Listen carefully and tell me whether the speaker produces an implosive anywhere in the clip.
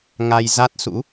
no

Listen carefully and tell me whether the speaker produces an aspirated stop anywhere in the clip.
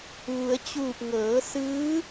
no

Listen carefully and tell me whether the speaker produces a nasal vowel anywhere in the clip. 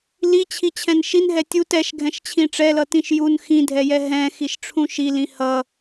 yes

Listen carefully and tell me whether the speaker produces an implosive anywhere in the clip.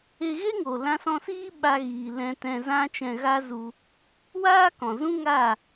yes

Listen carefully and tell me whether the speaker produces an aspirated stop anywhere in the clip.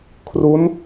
yes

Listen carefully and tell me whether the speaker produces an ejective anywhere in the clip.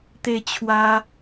no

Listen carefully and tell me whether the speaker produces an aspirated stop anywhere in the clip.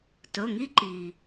no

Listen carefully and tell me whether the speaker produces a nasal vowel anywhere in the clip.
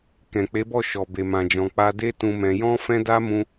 yes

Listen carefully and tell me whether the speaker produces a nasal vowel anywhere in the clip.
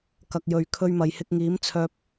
no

